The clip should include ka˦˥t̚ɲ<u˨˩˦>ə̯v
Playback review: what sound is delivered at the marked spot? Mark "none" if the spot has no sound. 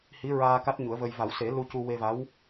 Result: u˨˩˦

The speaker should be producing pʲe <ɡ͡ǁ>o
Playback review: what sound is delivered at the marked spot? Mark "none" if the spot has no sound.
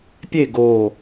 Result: ɡ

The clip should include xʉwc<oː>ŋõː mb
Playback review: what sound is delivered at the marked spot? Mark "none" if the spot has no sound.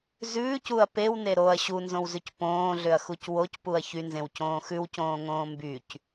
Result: õː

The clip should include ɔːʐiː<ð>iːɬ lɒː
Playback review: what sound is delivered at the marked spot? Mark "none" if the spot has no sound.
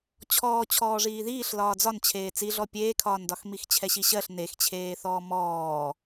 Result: ð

